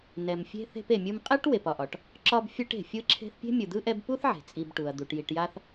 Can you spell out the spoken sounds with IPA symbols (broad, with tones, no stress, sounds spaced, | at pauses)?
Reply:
n ɛ˨ m fʲ e̤˥ θ e̤˦ p e˨ mʲ ɯ˦ m qʼ ɛ˥ ʈ w e˨ p ɒ˨ ʔ ɒ˩ ʈ | ǁ ɒ˦ b fʲ ɯ˦ ʈ e̤˩ fʲ ɯ˥ ǁʰ e̤˥ θ pʲ e̤˥ mʲ ɯ˨ d̪ ɯ˥ ʔ ɛ˦ b p u˥ θ ʕ e̤˩ t͡sʼ i˨ b ʈ u˩ ɐ̯ d̪ u˩ ʈ j i˨ ʈ j a˦ θ